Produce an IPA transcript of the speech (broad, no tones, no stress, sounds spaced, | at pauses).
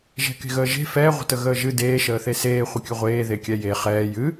ʒ ɛ̤ k e̤ ɣ əː ʒ e̤ f ɛ ʁʷ ə̤ t ə ɣ əː ʒ ɨ d eː ʃ əː θ e s eː χʷ ə kʲ ɨ ʁʷ eː ð e kʲ ɛ j e χ ɛː j ɨ